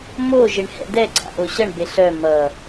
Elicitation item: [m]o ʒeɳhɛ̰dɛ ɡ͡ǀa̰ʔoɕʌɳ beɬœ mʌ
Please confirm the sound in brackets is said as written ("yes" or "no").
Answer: yes